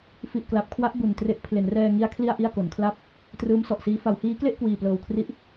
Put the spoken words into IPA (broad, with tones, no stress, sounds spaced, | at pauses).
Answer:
f i˨˩ ʔ k l a˨˩ p̚ kʰ w a˦˥ ʔ b u˨˩ n t r e˦˥ ʔ pʰ l e˩˦ n r ɛː˧ ŋ i˦˥ a̯ kʰ l i˥˩ a̯ ʔ i˥˩ a̯ k o˩˦ n kʰ l a˥˩ p̚ | t r ɯː˦˥ m s ɔ˨˩ ʔ s iː˦˥ f a˩˦ w h iː˦˥ k l e˥˩ ʔ k w iː˨˩ p l ɤː˨˩ w kʰ r i˦˥ ʔ